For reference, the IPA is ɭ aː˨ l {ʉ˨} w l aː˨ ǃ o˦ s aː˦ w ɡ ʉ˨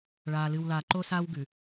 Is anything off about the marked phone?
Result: yes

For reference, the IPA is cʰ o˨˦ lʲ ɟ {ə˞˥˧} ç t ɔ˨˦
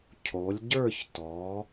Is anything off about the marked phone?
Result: no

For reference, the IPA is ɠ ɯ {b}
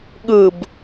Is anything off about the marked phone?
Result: no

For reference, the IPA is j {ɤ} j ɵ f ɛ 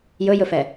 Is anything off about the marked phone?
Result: yes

